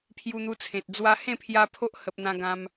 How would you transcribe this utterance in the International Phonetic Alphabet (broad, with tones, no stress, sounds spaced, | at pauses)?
pʰ j u˧ n̪ u˧ t͡sʰ ẽ˨ t̚ d͡z w a˧ h ẽ˥˧ pʰ j a˧ pʰ o˦ ʔ h ə˨ p̚ n̪ ã˧ ɡ ã˧ m